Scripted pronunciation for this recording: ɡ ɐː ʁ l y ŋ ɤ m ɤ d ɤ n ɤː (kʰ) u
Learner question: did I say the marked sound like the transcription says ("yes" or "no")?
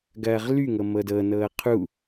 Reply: no